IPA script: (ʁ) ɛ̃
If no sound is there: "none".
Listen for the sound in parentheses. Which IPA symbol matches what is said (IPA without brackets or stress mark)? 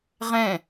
ʁ